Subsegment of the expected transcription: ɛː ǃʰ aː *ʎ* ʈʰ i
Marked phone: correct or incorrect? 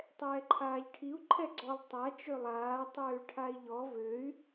correct